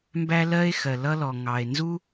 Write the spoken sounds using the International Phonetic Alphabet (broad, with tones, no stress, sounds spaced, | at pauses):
m b æ˥ l ɜ˥ e̯ x ɜ˩ l ʌ˥ l ɔ˩ ŋ ɑ˩ e̯ n z u˥